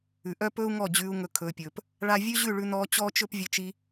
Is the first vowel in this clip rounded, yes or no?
yes